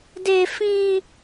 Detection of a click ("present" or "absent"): absent